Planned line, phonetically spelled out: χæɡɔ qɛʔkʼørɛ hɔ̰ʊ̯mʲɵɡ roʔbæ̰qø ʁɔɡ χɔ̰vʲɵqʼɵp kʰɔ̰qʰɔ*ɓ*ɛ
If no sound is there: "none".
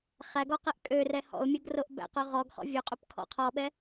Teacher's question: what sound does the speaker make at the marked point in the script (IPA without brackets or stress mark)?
ɓ